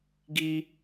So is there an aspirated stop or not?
no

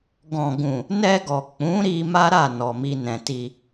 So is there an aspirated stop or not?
no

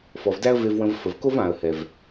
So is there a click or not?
no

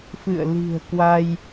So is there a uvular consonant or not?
no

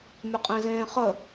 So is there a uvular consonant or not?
yes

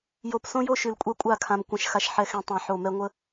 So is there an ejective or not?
yes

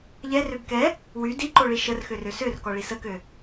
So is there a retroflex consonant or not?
yes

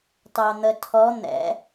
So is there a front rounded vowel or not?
no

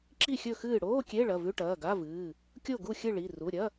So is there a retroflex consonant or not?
yes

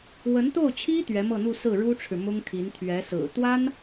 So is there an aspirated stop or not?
yes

